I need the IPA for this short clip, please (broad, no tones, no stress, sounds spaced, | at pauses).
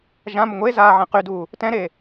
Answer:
ʒ ã m ə ŋʷ e z aː ʕ ɛ̃ q y d uː | t ɛ̃ ɾ e